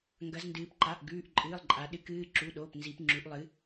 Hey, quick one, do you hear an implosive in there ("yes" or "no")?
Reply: yes